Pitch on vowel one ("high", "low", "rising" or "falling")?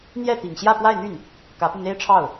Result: falling